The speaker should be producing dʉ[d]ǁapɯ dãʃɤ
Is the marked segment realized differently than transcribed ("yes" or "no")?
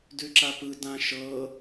yes